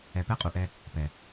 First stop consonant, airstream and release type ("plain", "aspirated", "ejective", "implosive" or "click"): plain